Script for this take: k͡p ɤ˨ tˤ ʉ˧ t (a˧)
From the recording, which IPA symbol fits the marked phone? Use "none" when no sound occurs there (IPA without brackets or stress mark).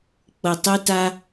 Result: a˧